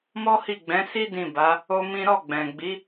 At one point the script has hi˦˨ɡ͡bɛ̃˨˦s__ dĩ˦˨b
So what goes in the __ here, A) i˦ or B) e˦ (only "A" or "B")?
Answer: A